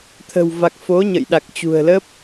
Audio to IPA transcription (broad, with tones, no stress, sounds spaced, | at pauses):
t̪ʰ ə̤˨˩ w v a˨˩ k̚ f o˨˦ ɲ ə̰˧˨ j ɗ a˨˩ k̚ t͡ɕ ṳ˨˩ ə̯ l ə˦˥ p̚